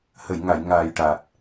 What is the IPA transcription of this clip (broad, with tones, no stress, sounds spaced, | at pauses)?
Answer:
h ə˨˩˨ j ŋ a˨˩˨ j ŋ aː˨˩ j ʈ a˨˩ t̚